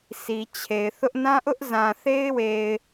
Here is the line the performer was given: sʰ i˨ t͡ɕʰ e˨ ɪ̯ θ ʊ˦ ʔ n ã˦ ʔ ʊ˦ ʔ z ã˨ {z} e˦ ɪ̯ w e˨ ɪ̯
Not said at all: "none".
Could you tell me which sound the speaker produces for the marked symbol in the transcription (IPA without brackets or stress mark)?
θ